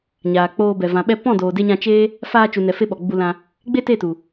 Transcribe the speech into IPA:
ɲ aː˨ k͡p oː˧ b ɛ˨ v ã˨ ɓ ɛ˧ p ɔ̃˦˨ d oː˨ d e˧ ɲ ã˧ t͡ʃ eː˦ | f aː˧ t͡ʃ u˨ n ɛ˨ f e˧ ɓ ɔ˨ ɡ͡b u˧ l ã˧ | ɡ͡b e˦ t e˦˨ t u˨

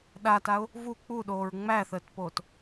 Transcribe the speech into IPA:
ɗ a t a ʊ̯ | v u k͡p u ɗ oː ɹ ŋ͡m æ θ əː t p oː t

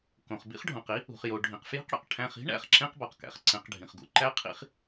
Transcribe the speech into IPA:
k õ˩ χ b ḭ˦ χ ɖʱ õ˩ q i˥ | ṳ˩ χ j o˩ ɖʱ ĩ˩ q f j i̤˥ q ɽ ḛ˩ q ʈʰ æ̃˨ χ i̤˥ ɳ æ̰˨ χ ǁ ẽ˥ q b ɒ˩ q k æ̰˩ χ ǀ ẽ˨ q ɖʱ ĩ˩ χ ɡ ṵ˦ ǃ æ˦ qʰ ḭ˦ χ

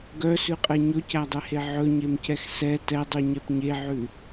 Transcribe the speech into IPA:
ɡ œ s ʉ qʼ ɛ ɲ ɵ c æ dˤ ɛ h e ʕ ɵ ɲ e m c ɛ x s ɛ t ɛ dˤ ʉ ɲ ɛ p ɲ e ʕ ʉ

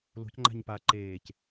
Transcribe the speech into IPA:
l o̤ c ŋ͡ǃ a̤ ɲ p a ǃ eː c

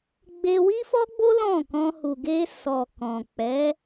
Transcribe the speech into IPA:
ɡ͡b e˧ w i˦ f ɔ˦ ɡ͡b o˦ l ɔ̃˦˨ k ɔ̃˧ h u˨ ɡ e˧ s ɔ˨ k ɔ̃˨ k͡p ɛ˨˦

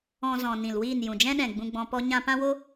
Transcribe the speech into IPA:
ɔ̃˧ z ɔ̃˨ n ĩ˨ l w iː˦˨ n j ũ˨ d͡ʒ ɛ̃˦ ɗ ɛ̃˨ ɡ͡b ũ˧ ɡ͡b ɔ̃˧ p ɔ˦ ɲ ã˦ p ã˦ w o˦

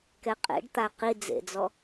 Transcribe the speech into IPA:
k ɛ qʼ ḛ ɖ t̪ a q i d͡z ḛ d͡z ɔ

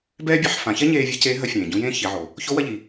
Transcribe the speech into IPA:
b ɛː˥ bʲ ɛ˧ ħ f ã˩˧ ç ɛ˥ ɲ eː˧ vʲ ɛ˧˥ c eː˧˥ ɦ ɐ˧˥ fʲ ẽː˩ ɟ ũ˧˥ j ẽː˥ ç i˩˧ ʕ o˩ | ç o˧˥ w ɐ˧ ʎ i˩

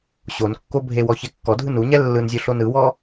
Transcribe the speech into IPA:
ɕ o n kː o bʱ e w ɔ ç ɛ kː ɔ dʱ ɯ n u ɲ ɛ lː ɯ n zʲ o ɬ o n ɯ w ɔ

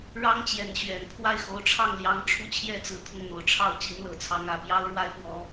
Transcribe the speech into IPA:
ɻ ɑ˥ ŋ t͡ɕ j ɛ˧˥ n ɕ ɥ ɛ˨˩ n pʰ w a˥˩ ɪ̯ x o˧˥ ʊ̯ ʈ͡ʂʰ ɑ˥˩ ŋ l j ɑ˧˥ ŋ ʈ͡ʂʰ u˥˩ t͡ɕʰ j ɛ˥ t͡s ɹ̩˨˩ t̪ʰ ʊ˥˩ ŋ n̪ o˨˩ ʊ̯ ʈ͡ʂʰ ɑ˥˩ ʊ̯ t͡ɕ i˧˥ n l ɤ˨˩ t͡sʰ ɑ˧˥ ŋ ä˨˩ p j ɑ˥ ʊ̯ ɻ w a˥ ɪ̯ p w ɔ˧˥

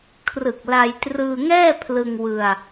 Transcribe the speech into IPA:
kʰ r ɯ˨˩ k̚ l a˧ j t r ɯː˧ ŋ ɛː˥˩ pʰ l ɯ˧ ŋ w ɯ˧ a̯

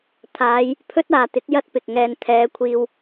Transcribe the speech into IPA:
t̪ʰ aː˨˧ j | pʰ ɵ˥ t̚ aː˨ t̪ ɪ˨˥ k̚ j ɐ˥ t̚ p ɪ˨ k̚ ŋ ɛː˧ n t̪ʰ ɛː˨˧ kʷʰ iː˧ w

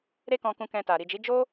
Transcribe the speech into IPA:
ɾ e˦ k ɔ̃˧ k ũ˧ k ɛ̃˧ t a˨ ɾ i˨ d͡ʒ i˨˦ d͡ʒ o˦

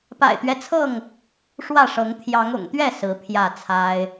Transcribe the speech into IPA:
p a̰˨˩ ɪ̯ t̪ ɥ ɛ˦ t͡sʰ ɤ˥˨ ŋ | ʂ w ä˥˨ ʂ ɤ˨˦ ŋ t̪ʰ j ɑ˨˦ ŋ ʊ̰˨˩ ŋ t̪ ɥ ɛ˥˨ s ɹ̩˨˦ pʰ j ä˥˨ t͡sʰ a˦ ɪ̯

